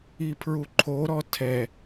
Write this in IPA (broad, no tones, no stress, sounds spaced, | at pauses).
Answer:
i pʰ ɹ u ǃʰ o ɾ ɔ tʰ ɛ